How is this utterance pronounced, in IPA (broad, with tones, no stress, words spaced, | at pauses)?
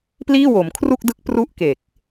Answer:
pliː˥˩wo˩˦mkʰru˥˩k̚dɯ˦˥k̚ pru˥˩ʔke˨˩k̚